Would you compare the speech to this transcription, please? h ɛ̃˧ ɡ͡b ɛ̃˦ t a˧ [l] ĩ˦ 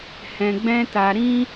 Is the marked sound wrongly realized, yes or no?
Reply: yes